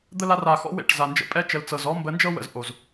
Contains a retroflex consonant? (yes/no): yes